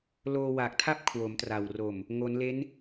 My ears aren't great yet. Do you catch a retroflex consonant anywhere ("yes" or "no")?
no